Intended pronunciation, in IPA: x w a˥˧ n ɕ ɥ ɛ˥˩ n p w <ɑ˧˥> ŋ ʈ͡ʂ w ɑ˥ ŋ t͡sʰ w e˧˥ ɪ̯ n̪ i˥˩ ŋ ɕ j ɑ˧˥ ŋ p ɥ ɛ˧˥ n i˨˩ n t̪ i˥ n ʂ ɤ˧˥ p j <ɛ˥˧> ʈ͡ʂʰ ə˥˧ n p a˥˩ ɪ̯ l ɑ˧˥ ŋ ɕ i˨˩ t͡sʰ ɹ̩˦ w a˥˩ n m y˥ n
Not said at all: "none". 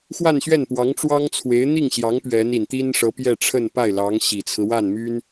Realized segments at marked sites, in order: ɑ˧˥, ɛ˥˧

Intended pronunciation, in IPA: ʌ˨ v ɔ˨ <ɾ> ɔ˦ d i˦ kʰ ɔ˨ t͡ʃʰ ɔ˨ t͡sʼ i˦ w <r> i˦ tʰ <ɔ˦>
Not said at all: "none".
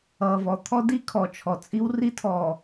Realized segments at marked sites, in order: t̪ʰ, r, ɔ˨

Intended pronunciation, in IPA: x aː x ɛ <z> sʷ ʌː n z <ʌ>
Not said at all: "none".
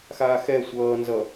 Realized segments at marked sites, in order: none, ʌ

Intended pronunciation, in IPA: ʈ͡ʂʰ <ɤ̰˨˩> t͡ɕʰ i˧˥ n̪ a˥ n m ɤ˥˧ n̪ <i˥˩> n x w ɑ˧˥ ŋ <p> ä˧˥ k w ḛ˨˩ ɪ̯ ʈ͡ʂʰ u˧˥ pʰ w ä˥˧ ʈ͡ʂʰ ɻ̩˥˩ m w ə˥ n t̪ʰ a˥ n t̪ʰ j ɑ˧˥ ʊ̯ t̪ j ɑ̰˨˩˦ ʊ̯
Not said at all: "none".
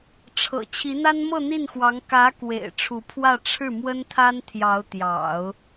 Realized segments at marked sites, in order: ɤ̰˨˩, i˥˩, k

